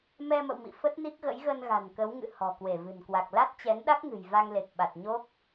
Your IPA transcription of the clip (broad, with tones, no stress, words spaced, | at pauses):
mɛ˧mə̰˧˨wmḭ˧˨ fə˦˥t̚ni˦˥k̚ɣə̰˧˥jɣə˧n ɣa̤˨˩nkə˨˦wŋɨ̰˧˨ hɔ̤˨˩kwe˧˩vɨ̤˨˩nkwa˨˩k̚ la˦˥t̚t͡ɕɛ˨˦nɗa˦˥k̚ŋɨ̤˨˩j va˧ŋle˨˩k̚ ɓa˨˩t̚ ɲo˦˥k̚